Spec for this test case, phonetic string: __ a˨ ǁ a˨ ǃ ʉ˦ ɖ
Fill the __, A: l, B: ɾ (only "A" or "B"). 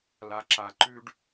A